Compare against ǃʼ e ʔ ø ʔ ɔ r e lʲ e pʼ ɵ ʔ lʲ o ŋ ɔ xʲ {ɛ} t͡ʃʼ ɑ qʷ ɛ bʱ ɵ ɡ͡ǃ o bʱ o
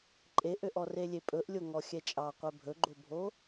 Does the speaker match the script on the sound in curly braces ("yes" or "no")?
yes